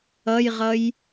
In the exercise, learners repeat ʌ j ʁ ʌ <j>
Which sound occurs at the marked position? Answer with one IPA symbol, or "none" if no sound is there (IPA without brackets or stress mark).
j